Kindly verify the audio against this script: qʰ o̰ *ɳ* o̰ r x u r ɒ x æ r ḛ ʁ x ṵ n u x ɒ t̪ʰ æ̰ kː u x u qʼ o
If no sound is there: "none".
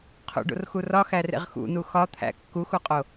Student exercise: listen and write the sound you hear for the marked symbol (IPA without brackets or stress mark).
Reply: ɖ